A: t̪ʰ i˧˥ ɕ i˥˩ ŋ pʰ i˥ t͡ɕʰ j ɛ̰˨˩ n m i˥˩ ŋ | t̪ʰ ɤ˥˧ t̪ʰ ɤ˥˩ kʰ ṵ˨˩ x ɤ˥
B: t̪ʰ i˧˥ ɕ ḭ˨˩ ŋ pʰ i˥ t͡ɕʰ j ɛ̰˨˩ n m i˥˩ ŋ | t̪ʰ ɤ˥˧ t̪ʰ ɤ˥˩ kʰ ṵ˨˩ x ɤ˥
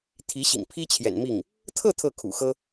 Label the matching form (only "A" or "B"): B